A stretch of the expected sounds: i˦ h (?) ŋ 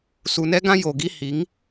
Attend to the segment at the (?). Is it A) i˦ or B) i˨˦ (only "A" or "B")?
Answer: B